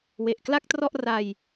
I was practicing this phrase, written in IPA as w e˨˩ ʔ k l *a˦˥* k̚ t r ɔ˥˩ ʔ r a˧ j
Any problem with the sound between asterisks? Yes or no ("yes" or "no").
yes